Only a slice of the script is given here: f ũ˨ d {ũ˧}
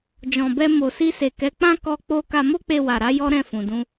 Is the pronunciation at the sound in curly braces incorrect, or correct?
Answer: correct